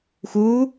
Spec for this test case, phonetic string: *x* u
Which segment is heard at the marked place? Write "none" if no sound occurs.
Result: x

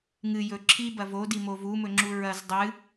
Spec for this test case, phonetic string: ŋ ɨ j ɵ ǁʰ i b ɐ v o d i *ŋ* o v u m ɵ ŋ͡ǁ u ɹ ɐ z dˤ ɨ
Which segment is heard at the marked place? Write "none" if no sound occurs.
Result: m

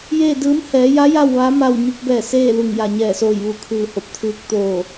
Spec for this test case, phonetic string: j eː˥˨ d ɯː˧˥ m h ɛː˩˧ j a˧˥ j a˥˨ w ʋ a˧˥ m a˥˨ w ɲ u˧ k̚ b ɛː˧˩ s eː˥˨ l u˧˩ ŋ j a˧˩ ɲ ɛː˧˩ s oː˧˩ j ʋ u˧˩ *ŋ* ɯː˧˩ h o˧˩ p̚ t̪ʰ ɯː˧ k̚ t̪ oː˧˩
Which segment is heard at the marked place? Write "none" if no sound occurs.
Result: kʰ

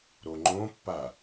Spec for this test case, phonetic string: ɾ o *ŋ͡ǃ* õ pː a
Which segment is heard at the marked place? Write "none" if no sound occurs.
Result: ŋ͡ǃ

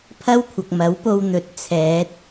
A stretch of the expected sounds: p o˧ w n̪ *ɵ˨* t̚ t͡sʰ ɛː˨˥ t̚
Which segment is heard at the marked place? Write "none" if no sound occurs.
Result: ɵ˧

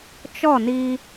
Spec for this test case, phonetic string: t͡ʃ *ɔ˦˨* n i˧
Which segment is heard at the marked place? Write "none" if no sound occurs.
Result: ɔ˦˨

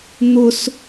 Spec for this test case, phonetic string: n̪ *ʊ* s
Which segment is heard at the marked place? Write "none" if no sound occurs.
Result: ʊ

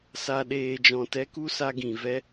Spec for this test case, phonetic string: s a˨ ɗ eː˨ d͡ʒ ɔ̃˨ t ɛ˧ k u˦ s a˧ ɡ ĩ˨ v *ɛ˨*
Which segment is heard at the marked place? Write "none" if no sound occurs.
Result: ɛ˦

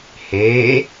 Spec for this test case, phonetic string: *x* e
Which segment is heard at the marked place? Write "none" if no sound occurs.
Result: h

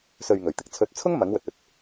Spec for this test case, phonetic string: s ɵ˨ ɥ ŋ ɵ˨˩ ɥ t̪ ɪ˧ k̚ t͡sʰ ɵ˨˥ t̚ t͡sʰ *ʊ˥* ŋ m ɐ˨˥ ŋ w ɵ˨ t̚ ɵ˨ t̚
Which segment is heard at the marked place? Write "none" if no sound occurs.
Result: ʊ˥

